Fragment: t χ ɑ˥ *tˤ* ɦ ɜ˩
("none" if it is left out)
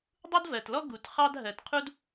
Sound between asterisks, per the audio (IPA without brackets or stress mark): d